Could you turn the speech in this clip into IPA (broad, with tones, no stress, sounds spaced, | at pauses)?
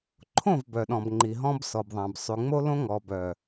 ǃʰ õ˦˨ v b œ˨ ɗ ɔ̃˨ b ŋ͡ǃ i˨ ɦ ɔ̃˦ b s ɔ˨ b ðˤ ã˨ b sˤ y˨ ŋ͡m o˦ l õ˦ ŋ ɔ˨ b œ˨